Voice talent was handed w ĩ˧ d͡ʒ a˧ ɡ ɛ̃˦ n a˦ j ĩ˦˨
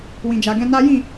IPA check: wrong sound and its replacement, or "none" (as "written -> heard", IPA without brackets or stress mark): none